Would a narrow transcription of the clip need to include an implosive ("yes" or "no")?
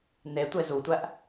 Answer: no